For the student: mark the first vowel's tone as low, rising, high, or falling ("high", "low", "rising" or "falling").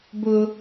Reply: high